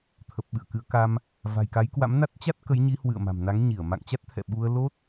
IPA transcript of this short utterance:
t̪ʰ ə˨˩ p̚ ɓ ɨ̰˧˨ ə̯ k ɨ˨˦ ə̯ k a˧ m | v a̤˨˩ j k a˨˦ j k w a̰˧˥ m n a˦˥ t̚ t͡ɕ a˦˥ t̚ k ə˨˦ j ɲ i˨˦ h w ɨ̰˧˨ ə̯ m a̤˨˩ m n a˨˦ ŋ ɲ i˧˩ ə̯ m a̰˧˨ ŋ t͡ɕ a˦˥ t̚ t̪ʰ ɛ̰˧˨ ɓ u˧ ə̯ l o˦˥ t̚

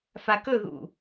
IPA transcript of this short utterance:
f a k ɵ ð ṵ

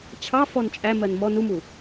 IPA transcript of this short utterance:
t͡ɕʰ ɑ f ɔ n t͡ʃʼ æ m ɜ n m ɔ n u m u

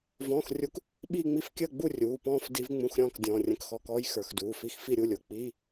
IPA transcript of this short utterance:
v ɔ̃ː˧˥˧ x rʲ u˦˥ k | ɓ iː˥˧ ŋ͡m i˥˧ f kʲ əː˥˧ ɡ͡b u˥˧ rʲ uː˩˧˩ p ɔ̃ː˥˧ f d i˦˥ v ŋ͡m ũ˧˥˧ x ɾʲ ɔ̃ː˥˧ k dʲ ɔ̃ː˩˧˩ rʲ ə̃˧˥˧ k x ɔ˧˥˧ k ɔː˦˥ j x ə˞˩˧˩ x d uː˩˧˩ f i˦˥ x f i˥˧ ɾʲ u˥˧ lʲ ʊ˩˧˩ k͡p iː˧˥˧

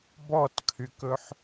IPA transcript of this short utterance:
b ɔ t kʰ y k ɵ ħ

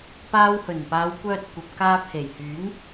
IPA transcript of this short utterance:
p aː˧ w h ɵ˨˩ n p aː˨˧ w kʷ œː˧ t̚ kʷ ɐ˨ p̚ k aː˧ pʰ e˨˩ j h yː˨˥ ŋ

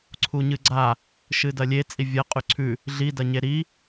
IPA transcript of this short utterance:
ǀʰ u ɲ ɨ ɡ͡ǀ a | ʃ ɨ d ɐ lʲ e t͡sʼ i vʲ ɐ qʼ ʉ ǀʰ ʉ | ɮ i d ɐ ɲ e ɾ i

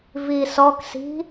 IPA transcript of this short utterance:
v i s ɔ k s i̤

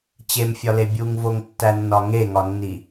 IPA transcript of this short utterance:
t͡ɕ e m fʲ ɒ l e bʲ u ŋ v o ŋ tː æ nː ɒ ŋ e ŋ ɒ nː i

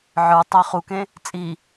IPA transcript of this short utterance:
ʕ ə˞ tˤ æ χ u k ẽ | t͡sʼ i

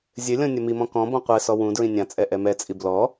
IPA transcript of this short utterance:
zʲ ɘ lʲ ɔ̃ nʲ ɐ m i m ɔ̃ k ɔ̃ b ɔ̃ qʷ ɛ s ɔ w ũ d ɹ ĩ nʲ ã t͡sʼ ɛ ʔ ɛ m ɛ t͡sʼ i b l ɔ

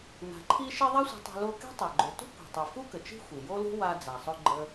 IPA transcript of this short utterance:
n a̤˩ ǃʰ i˧ ʃ i˧ ðˤ a˥ sʷ i̤˧ tˤ ṳ˧ l o˧ k e̤˥ tˤ o˩ ɡ͡ǃ ɵ˩ t ṳ˥ kʷ e̤˩ tˤ i˩ f u˥ k ə˩ t͡ʃ i̤˥ xʷ i˩ j o˥ l ṳ˥ w a˧ d͡z a˩ sˤ ɵ˧ ɡ͡ǃ ə˧

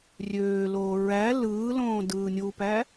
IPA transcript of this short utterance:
rʲ øː l oː ɹ æ l ɯː l õː d ɯː nʲ u p æ

